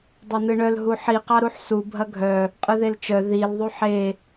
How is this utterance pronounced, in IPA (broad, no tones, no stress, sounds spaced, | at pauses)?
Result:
dˤ œ n ɯ ɳ œ l ɦ u ħ i q ɑ ɾ u ħ s u bʱ ɐ ɡʱ œ | qʼ ɯ ð e l t͡ʃ œ ð i l ðˤ u ħ e